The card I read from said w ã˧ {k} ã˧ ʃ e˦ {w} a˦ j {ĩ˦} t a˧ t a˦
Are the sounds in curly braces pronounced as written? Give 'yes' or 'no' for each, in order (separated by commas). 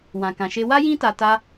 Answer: yes, yes, yes